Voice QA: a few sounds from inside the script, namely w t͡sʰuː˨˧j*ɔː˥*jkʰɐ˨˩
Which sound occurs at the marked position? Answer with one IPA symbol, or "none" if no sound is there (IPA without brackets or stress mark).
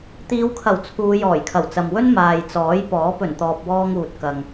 ɔː˨˩